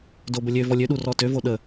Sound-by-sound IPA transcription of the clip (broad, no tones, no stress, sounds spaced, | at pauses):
d o b ə lʲ ø v ɔ lʲ ø ɗ u r ɔ t ø v o ɗ ə